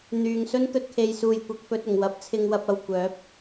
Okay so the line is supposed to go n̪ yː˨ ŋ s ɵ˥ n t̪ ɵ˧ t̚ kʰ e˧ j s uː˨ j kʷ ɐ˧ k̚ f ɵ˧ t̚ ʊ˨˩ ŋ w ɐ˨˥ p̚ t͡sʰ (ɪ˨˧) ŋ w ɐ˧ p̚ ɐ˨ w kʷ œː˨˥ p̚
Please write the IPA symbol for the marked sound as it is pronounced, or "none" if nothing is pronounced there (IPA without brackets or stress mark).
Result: ɪ˧